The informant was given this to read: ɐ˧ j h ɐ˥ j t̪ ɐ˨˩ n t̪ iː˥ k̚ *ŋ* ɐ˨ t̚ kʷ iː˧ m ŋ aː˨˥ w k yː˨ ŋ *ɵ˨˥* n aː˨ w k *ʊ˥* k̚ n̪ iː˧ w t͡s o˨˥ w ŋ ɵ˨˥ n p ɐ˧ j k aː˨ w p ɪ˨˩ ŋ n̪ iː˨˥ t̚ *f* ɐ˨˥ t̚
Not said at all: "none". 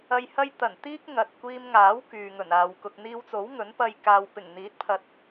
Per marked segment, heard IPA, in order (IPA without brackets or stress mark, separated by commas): ŋ, ɵ˨˩, ʊ˧, pʰ